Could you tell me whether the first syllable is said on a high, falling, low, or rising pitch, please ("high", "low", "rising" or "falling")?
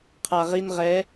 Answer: low